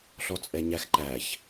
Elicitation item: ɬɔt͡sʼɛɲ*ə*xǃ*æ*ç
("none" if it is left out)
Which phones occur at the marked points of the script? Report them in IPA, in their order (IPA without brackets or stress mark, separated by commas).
æ, æ